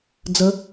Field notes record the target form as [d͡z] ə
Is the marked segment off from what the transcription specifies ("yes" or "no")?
no